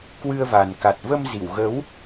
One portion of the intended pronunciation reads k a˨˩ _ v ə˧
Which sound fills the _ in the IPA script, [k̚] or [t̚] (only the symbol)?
t̚